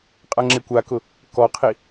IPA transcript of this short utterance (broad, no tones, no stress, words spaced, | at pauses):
qʼaŋ͡ǁekʷakʊ | kɔqʰi